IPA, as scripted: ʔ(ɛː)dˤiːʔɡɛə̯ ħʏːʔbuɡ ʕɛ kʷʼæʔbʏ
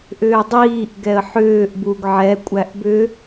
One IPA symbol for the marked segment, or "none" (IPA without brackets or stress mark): ʏː